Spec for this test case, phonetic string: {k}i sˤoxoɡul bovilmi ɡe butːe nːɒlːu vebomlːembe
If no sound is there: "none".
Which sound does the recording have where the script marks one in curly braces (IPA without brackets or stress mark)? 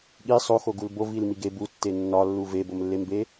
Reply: ɠ